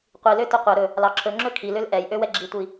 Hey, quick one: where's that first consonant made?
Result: uvula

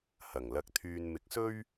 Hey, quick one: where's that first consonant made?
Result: throat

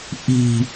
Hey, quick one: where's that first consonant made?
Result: throat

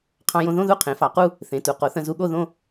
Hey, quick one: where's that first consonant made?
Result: uvula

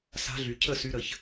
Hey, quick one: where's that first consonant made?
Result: tongue tip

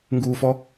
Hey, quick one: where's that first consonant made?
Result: velum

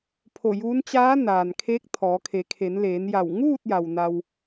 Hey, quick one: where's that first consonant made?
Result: lips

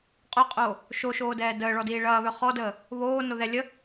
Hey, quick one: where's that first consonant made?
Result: uvula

